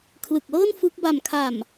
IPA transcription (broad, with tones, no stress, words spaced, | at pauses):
kʰlɯ˨˩k̚lɤː˥˩n fɯ˦˥k̚ ba˨˩mkʰa˨˩m